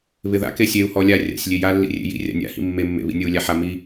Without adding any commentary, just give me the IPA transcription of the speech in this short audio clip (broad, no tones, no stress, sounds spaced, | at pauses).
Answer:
β ɪ ð a̰ k e sʲ e u̯ h ɔ lʲ a rʲ a̰ sʲ lʲ e j a lː ḭ rʲ ḛ j ḭ rʲ a̰ nʲ a̰ h ḭ mː e mː ḛ β ḭ nʲ ɤ u̯ lʲ a ħ a m i